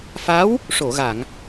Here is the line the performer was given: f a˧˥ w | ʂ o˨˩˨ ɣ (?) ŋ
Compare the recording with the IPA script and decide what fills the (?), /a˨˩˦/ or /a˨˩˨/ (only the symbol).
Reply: a˨˩˨